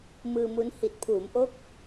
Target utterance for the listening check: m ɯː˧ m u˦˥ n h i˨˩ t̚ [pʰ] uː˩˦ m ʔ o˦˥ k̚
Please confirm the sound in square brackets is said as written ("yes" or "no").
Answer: yes